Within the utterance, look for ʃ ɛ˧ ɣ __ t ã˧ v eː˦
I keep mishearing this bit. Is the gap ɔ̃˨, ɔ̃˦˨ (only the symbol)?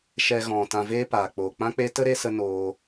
ɔ̃˨